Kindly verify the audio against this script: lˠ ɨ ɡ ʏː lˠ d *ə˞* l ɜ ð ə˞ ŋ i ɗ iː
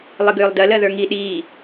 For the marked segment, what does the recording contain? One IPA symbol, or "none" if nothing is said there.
ɜ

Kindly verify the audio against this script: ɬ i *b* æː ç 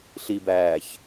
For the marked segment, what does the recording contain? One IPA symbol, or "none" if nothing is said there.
b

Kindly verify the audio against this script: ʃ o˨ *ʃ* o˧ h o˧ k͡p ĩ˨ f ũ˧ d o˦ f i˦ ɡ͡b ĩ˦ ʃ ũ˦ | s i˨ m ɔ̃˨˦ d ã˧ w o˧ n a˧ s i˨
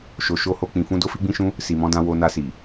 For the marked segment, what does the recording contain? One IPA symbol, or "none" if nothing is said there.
ʃ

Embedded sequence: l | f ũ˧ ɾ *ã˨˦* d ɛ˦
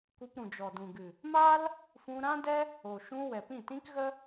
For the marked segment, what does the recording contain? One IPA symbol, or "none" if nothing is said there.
ã˦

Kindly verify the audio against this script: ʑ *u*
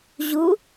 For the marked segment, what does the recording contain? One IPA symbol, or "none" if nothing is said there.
u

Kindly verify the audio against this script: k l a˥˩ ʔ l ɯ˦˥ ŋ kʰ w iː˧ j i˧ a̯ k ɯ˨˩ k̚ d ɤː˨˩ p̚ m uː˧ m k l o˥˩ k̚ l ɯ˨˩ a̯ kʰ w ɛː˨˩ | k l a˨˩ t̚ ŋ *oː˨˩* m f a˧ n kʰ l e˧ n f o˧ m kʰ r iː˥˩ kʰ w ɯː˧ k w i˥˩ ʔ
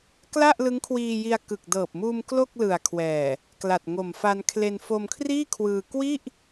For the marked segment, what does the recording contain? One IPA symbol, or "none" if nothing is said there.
o˨˩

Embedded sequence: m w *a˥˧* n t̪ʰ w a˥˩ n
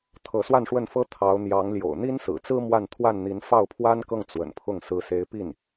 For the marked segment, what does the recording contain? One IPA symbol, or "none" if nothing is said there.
a˥˧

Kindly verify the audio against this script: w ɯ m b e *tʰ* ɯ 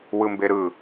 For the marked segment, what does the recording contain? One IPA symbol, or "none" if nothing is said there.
ɾ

